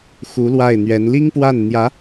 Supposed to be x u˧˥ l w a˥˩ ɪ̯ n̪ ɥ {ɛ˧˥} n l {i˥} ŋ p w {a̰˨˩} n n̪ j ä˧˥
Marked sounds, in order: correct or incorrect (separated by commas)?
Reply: correct, correct, incorrect